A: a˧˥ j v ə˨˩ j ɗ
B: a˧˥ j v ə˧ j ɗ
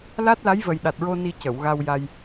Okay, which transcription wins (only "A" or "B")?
A